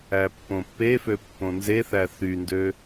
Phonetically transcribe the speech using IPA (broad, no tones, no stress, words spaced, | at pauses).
æpːõpːefø pːõnzeθæ θyndø